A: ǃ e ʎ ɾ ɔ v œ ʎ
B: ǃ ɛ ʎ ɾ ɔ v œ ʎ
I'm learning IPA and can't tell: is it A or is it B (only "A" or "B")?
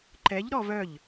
B